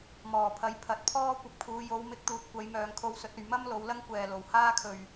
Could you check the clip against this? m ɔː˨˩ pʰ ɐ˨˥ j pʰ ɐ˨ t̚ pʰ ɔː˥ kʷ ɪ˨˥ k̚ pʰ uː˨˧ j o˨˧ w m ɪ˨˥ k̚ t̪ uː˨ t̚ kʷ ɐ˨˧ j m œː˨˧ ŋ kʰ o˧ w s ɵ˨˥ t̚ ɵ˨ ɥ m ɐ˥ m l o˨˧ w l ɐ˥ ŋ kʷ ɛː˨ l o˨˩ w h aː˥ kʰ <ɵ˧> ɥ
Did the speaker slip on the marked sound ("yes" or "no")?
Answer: yes